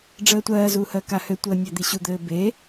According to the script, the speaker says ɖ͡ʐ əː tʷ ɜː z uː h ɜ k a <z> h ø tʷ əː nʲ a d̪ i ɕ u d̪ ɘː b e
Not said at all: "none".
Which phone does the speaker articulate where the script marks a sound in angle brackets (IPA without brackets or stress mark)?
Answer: none